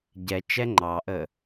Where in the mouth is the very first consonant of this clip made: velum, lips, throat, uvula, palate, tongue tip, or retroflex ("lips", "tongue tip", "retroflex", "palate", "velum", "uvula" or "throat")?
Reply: palate